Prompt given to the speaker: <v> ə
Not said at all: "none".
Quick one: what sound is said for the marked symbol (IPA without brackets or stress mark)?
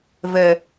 v